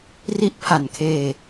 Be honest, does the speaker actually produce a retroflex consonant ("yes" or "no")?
no